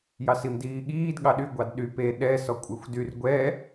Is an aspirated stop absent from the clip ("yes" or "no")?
yes